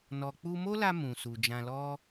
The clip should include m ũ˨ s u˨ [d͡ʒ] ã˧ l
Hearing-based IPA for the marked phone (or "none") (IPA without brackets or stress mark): d͡ʒ